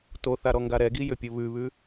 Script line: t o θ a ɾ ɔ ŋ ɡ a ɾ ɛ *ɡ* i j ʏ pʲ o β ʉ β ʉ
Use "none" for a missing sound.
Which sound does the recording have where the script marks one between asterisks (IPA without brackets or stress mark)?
ɡ